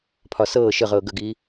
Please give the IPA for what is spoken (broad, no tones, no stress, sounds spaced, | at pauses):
pʰ ɒ s ɤː ʃ ə ʁ ɤː ɡ ə ɡ iː